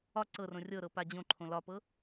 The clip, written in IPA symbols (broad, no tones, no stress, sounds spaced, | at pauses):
ɒ ǀ ɤ r õ rʲ ɤ ɾ ɤ p a d͡ʑ õ ǃʰ õ l ɒ p ɤ